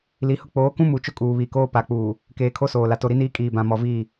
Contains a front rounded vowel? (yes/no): no